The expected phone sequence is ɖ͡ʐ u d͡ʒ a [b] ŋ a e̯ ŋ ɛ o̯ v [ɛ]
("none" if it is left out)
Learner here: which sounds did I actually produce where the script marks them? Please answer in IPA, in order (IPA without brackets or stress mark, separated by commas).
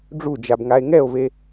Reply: b, e